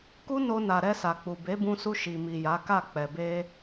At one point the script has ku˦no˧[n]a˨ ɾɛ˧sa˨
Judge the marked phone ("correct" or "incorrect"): correct